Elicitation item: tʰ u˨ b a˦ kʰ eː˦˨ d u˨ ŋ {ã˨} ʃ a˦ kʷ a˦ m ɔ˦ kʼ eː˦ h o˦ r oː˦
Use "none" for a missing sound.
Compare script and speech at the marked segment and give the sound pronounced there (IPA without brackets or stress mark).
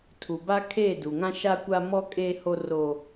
ã˦